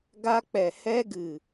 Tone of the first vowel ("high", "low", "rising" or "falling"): high